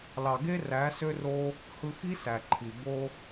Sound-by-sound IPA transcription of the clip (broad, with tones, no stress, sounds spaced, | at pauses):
l ɑ˨ ɡ e˦ r æ˨˦ s ø˦ r o˦ | h ɯ˧ x i˦ s æ˨ ǃʰ i˨ b o˦